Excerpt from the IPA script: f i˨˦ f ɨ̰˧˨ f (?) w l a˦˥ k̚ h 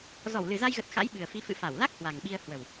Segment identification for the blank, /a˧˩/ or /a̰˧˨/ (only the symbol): a˧˩